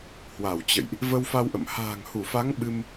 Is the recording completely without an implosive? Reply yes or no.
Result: no